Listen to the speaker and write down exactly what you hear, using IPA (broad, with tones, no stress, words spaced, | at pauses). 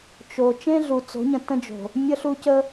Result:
t͡ʃo˨ t͡ʃẽ˦ɮu˨t͡so̤˨˦ɲə̃˨ tə̃˦d͡ʒo̤˨ | mʲə˦ɬu˦cə˦